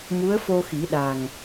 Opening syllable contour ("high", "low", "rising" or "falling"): rising